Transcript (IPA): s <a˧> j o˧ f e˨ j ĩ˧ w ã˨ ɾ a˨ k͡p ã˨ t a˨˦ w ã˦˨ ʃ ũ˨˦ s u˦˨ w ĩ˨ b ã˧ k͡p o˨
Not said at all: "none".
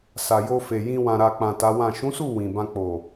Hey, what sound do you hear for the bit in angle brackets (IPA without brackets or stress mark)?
a˨